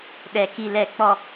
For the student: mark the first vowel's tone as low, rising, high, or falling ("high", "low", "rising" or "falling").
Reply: low